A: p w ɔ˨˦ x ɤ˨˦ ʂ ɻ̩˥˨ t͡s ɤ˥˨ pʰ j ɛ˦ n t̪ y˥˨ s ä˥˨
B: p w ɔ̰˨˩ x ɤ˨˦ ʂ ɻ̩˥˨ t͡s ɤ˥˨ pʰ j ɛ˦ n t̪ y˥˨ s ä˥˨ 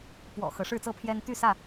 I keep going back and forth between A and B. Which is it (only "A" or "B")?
B